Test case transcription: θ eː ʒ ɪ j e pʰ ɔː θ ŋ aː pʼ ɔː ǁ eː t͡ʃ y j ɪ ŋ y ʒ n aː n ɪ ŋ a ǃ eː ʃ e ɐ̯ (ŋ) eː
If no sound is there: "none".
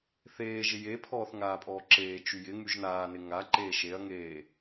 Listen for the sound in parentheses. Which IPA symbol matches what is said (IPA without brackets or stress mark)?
ŋ